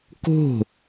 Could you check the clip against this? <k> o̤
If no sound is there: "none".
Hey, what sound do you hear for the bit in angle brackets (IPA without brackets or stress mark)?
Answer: k